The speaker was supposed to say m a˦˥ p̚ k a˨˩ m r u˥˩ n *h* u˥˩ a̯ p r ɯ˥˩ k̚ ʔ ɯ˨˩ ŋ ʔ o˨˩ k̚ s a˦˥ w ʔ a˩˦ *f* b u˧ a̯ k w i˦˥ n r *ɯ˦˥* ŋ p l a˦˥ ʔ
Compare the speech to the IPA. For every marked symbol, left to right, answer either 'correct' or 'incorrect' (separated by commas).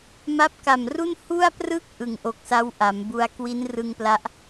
correct, incorrect, incorrect